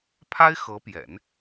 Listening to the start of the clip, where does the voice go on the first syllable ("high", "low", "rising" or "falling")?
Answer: high